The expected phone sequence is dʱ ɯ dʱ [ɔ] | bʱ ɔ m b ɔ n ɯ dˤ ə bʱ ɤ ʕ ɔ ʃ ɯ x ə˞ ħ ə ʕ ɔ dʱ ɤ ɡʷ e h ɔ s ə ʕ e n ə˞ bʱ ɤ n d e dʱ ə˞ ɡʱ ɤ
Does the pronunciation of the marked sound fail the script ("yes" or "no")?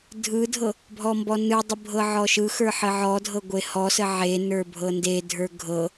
yes